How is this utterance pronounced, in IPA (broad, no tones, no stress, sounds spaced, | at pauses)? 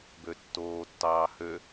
b ø tː oː tː ɑː h ø